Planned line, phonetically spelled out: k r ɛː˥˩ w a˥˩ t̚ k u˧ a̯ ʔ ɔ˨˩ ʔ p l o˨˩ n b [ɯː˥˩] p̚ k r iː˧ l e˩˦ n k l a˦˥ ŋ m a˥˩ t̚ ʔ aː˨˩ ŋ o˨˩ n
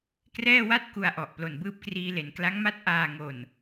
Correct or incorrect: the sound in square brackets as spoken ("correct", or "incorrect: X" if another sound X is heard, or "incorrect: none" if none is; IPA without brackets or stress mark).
correct